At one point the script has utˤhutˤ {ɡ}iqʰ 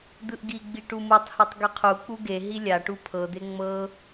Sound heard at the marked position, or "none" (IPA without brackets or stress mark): ɡ